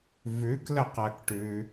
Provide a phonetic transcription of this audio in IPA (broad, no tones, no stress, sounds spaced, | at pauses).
v ʉ k l ə q ɜ k ʈ ʉ